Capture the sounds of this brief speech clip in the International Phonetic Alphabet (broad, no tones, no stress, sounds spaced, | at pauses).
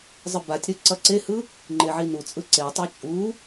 zˤ ɯ b a tʲ ɾ ɯ ǀ ʌ ǀ e h ɯ | ŋ͡ǃ e ʕ i n u t͡sʼ ɯ ǀ e tˤ e t͡ʃʼ u